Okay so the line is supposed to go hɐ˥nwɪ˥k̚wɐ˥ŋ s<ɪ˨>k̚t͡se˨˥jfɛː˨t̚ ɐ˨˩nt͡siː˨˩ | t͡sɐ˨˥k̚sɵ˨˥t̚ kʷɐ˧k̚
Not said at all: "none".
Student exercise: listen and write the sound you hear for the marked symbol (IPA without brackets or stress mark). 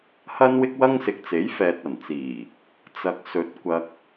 ɪ˨